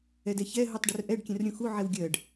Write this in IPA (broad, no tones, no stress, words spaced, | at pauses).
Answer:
ɛdɛçɛ ɦutˤɖərʔɛɖ kʲɛ̃rɾʲũxu ʕɛwɡʲɜɖ